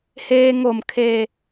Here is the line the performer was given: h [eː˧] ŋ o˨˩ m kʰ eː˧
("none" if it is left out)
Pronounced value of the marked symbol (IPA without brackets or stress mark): eː˧